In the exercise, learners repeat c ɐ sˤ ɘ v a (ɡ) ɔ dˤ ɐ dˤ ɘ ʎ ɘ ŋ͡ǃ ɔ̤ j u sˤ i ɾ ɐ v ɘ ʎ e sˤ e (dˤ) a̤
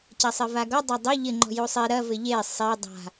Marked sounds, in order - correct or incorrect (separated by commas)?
correct, correct